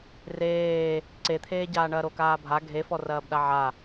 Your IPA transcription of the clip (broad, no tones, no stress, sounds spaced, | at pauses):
r eː | ǀ e t̪ʰ eː ɟ aː ɳ ɐː ɾ o k aː bʱ a ɡʱ e f ɔ r ɐː b ɗ a ʕ a